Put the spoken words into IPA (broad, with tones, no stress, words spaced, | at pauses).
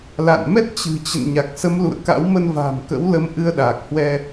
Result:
la̰˧˨nmɛ˦˥t̚ t͡ɕɨ̤˨˩t͡ɕə̰˧˨n ɲa˨˩k̚sə˨˦mlṵ˧˨ə̯ka̰˧˥w mə˧nva̤ː˨˩mkə̰˧˥wlə˨˦m ʔɨ˧ə̯ɗaː˨˩k̚hwɛ˧